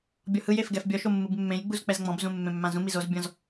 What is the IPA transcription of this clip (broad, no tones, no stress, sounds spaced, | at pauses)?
bʲ ɔ h ɯ j e f ɡ ɛ f bʲ ɔ ʃ o mː ɯ b mː ẽ j ɡ͡b u z k͡p ɛ z ŋ͡m ɔ̃ b z ũ mː ẽ mː ã z ũ m i z o z bʲ ɔ̃ z